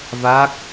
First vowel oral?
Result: yes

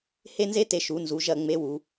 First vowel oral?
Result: yes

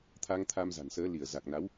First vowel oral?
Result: yes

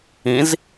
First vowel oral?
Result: no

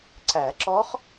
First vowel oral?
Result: yes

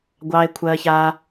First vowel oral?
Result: yes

